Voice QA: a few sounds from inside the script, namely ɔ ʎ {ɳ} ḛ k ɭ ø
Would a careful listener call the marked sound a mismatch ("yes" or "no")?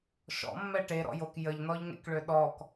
yes